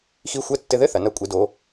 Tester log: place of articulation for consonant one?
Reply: velar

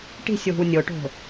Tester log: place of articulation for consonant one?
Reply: retroflex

